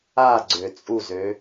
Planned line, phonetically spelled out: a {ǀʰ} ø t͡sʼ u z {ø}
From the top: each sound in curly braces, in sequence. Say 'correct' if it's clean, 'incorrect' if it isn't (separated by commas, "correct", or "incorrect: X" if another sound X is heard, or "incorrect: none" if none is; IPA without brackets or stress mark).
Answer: incorrect: ɡ͡ǀ, correct